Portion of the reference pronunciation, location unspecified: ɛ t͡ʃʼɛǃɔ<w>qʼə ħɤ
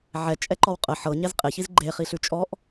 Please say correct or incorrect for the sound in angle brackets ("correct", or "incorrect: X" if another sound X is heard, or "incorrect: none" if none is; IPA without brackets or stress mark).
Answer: correct